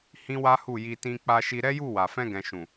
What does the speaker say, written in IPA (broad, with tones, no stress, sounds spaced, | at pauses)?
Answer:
h ĩ˦ w a˦ h u˦˨ j i˧ t ĩ˧ k͡p a˧ ʃ i˧ ɾ ɛ˦ j u˦˨ w a˨ f ɛ̃˧ ɡ ɛ̃˨ ʃ ũ˨